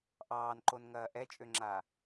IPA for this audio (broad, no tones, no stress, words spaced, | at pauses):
ʔɑːnǃonŋɐː ʔɛt͡ʃʼøŋ͡ǁa